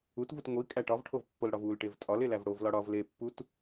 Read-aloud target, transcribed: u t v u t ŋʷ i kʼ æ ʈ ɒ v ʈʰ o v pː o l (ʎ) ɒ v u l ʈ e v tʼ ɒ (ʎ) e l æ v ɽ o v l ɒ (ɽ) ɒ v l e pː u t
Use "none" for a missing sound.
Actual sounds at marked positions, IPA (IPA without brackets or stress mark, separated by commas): ɽ, l, ɽ